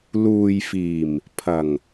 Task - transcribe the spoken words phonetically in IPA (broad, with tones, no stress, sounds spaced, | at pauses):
l uː˨ j f iː˨˩ m | pʰ ɐ˨˩ ŋ